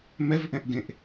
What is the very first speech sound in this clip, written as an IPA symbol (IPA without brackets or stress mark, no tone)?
m